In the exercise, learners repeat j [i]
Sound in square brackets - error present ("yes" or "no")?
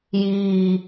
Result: yes